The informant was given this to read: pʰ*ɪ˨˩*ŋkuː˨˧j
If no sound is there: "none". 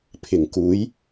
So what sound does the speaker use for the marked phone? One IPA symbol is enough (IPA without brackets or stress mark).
ɪ˨˩